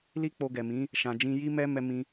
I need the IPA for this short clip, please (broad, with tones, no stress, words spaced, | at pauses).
li˦k͡po˧ɡɛ˨mĩ˨˦ | ʃã˨d͡ʒĩ˧ji˦mɛ˦ mɛ˦mĩ˦